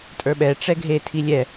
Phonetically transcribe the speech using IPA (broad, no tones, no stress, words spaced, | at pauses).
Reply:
tʼə˞ɓɛ ʈ͡ʂɛɡʱe tʰilʲɛ